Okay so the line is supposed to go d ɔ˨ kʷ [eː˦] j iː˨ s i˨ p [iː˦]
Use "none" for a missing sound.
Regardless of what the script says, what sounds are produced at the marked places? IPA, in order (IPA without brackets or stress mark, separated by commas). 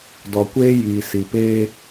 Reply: eː˦, eː˦